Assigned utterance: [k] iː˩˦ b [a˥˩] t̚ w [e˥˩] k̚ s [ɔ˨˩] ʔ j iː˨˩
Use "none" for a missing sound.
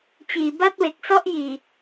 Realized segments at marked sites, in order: t͡ɕ, a˥˩, e˨˩, ɔ˥˩

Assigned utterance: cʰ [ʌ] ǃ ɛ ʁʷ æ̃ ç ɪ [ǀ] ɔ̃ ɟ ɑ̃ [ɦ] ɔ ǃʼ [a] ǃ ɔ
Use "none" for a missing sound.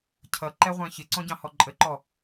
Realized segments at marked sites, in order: ʌ, ǀ, h, ə

